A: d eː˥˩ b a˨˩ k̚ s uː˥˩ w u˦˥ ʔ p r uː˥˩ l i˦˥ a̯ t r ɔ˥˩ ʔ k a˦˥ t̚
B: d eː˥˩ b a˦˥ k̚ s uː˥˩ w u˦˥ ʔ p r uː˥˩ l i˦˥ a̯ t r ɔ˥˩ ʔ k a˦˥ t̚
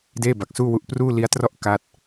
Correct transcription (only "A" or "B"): A